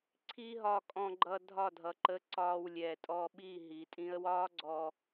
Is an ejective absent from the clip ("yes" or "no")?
no